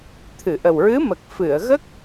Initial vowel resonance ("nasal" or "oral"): oral